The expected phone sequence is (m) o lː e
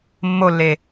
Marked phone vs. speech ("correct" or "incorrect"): incorrect